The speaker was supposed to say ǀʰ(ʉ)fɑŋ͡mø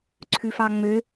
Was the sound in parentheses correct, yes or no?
yes